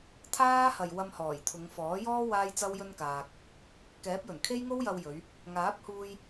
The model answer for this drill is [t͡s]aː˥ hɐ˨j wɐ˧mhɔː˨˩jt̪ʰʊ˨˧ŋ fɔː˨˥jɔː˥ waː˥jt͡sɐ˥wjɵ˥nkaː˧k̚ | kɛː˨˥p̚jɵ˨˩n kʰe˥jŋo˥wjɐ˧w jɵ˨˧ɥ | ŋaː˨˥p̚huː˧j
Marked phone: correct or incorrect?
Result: incorrect: t̪ʰ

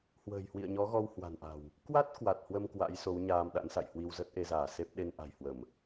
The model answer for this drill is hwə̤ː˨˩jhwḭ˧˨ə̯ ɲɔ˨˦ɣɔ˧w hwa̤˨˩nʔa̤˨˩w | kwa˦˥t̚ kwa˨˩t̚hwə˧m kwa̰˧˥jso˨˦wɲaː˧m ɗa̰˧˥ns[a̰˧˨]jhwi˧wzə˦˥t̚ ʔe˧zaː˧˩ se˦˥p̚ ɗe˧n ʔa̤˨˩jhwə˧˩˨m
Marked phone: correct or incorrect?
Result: correct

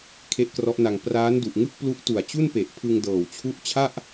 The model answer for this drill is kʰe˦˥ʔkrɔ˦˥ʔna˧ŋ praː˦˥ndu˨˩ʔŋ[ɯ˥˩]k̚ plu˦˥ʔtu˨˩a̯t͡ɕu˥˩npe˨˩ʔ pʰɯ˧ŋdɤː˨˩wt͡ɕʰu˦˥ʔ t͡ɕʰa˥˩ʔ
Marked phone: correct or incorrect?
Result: correct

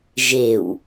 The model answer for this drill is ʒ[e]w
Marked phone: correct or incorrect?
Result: correct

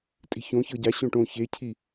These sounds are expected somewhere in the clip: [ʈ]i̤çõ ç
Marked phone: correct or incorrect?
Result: incorrect: tʼ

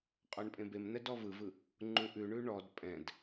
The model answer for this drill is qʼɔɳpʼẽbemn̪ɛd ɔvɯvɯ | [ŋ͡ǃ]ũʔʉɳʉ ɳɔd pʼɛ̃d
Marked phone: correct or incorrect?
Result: correct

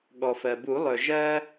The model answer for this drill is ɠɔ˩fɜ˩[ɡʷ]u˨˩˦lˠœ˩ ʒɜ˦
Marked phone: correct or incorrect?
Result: incorrect: b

